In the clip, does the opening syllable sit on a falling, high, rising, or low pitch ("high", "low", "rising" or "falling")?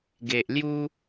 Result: low